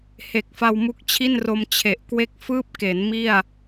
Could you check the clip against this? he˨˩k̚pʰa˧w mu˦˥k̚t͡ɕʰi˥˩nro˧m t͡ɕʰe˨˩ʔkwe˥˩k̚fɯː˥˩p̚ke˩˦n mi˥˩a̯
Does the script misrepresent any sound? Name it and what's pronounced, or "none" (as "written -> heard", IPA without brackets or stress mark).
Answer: pʰ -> f